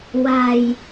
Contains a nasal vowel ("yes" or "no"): no